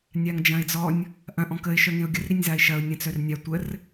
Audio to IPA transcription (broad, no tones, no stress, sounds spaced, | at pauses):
nʲ a ŋ d͡ʒ ɐ̃ ɪ̯ d͡z ɔ nʲ | ʔ ɐ̃ ʔ ɔ̃ k ə ɪ̯ ʃ œ ŋ ẽ ʊ̯ ɡʲ ə r ɾ i nʲ z a ɪ̯ ʃ ɐ ʊ̯ nʲ ɐ̃ t͡s œ r nʲ a tʷ ə r